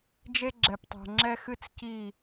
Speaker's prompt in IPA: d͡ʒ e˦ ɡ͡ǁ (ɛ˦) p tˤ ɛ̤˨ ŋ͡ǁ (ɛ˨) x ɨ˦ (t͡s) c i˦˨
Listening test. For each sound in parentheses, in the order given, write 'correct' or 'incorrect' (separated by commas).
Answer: incorrect, incorrect, correct